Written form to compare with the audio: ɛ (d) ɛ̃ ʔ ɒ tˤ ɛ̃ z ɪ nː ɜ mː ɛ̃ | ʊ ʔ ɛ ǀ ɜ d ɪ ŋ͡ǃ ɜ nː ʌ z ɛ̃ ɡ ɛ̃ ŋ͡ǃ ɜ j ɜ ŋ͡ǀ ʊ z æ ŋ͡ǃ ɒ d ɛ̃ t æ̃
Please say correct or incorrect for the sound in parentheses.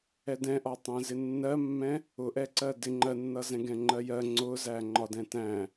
correct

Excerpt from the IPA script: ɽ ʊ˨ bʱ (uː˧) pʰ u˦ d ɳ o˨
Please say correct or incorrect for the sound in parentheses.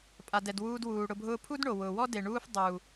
incorrect: ʊː˧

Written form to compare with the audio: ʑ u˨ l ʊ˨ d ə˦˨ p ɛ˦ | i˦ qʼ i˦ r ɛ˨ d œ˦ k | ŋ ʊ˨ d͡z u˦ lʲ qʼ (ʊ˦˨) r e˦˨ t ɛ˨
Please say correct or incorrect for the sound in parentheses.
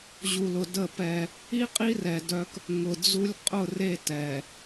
correct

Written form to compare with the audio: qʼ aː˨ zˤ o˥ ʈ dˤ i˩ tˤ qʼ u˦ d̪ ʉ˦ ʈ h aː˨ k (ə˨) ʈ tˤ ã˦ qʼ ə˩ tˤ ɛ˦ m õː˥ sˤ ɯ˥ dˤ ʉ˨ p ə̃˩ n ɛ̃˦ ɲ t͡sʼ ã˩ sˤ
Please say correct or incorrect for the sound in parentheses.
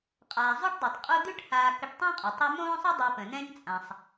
correct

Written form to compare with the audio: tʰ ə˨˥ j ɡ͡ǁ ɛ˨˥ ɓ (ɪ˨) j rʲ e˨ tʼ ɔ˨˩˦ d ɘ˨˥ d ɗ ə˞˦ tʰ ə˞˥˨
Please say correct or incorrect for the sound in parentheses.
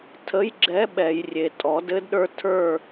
incorrect: ɛ˨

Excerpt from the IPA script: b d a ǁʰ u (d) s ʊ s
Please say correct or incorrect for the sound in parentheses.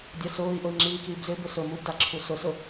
incorrect: none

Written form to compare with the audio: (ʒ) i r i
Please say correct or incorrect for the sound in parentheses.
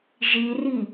correct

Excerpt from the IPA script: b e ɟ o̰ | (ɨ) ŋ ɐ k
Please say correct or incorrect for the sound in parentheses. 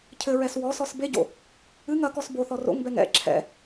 correct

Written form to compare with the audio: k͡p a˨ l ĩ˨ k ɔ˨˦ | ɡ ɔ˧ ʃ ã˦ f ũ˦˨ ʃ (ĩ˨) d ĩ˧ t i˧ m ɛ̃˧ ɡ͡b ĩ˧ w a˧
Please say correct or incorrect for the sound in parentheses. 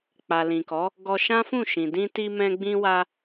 correct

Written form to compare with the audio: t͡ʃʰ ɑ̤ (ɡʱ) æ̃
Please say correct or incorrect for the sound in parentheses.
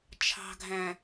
correct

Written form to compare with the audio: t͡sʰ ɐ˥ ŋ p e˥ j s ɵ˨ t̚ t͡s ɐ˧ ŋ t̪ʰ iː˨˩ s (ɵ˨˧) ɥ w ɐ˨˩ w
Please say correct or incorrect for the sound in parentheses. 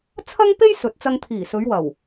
correct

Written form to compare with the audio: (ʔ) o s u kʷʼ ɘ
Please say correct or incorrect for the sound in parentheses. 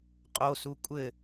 incorrect: qʼ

